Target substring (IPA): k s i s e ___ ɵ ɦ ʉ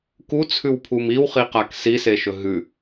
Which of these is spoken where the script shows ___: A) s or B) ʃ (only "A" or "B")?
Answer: B